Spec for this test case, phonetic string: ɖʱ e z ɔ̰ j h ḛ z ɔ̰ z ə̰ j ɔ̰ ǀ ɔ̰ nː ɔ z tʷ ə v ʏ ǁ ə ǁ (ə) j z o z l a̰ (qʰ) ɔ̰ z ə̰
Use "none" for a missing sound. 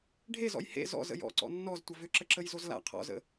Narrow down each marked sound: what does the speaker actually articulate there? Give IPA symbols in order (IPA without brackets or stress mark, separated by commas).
ə, qʰ